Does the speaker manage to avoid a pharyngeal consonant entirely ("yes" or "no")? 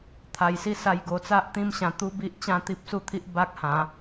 yes